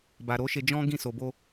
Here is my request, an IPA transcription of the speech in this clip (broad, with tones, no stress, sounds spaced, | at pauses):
b a˨ ɾ o˨˦ ʃ e˧ d͡ʒ ɔ̃˦ ɡ ĩ˦˨ s o˨ b o˧